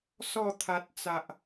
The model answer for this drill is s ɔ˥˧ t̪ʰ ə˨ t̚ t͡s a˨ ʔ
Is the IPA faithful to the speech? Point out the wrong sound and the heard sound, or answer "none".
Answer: ə˨ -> a˨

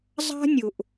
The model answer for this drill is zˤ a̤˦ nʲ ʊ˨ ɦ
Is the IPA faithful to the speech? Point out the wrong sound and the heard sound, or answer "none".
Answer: ɦ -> ʔ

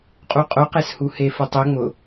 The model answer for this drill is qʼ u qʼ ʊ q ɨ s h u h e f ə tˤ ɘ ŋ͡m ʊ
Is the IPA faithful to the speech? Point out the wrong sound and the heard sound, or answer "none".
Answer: ɨ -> e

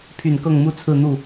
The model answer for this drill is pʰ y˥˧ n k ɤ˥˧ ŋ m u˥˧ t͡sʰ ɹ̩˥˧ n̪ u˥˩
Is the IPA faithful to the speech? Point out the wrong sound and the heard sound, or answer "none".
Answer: y˥˧ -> y˨˩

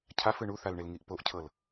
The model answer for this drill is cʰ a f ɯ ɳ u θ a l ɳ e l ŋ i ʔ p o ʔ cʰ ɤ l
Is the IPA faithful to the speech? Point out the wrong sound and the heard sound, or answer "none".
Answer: none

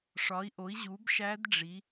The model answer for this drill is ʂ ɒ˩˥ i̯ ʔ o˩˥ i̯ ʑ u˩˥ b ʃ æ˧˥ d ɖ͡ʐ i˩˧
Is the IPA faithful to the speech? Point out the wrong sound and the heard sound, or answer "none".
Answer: none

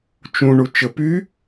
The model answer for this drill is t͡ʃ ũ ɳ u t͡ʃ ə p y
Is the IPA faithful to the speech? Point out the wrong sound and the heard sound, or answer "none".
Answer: none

